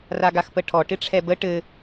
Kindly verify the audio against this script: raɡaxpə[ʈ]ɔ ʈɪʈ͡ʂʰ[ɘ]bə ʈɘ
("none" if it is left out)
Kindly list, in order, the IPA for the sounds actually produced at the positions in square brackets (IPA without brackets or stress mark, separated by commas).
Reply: ʈʰ, ɛ